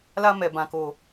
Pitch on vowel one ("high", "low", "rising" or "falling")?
high